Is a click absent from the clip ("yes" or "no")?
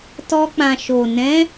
yes